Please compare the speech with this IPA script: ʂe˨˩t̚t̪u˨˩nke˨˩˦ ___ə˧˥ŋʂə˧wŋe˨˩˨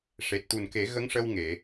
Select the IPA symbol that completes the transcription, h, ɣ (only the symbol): ɣ